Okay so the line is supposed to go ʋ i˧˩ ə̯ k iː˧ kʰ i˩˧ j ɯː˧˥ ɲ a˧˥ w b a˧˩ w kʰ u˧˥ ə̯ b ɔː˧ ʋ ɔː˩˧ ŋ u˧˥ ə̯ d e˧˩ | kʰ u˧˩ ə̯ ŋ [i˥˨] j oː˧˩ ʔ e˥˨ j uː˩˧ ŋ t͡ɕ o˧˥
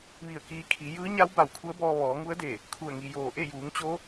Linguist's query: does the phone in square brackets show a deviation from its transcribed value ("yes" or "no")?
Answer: yes